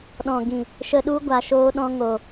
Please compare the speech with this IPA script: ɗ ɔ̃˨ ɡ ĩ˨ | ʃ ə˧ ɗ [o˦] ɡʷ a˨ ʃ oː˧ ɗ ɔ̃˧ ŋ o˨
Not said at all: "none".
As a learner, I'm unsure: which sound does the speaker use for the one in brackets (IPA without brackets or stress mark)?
u˦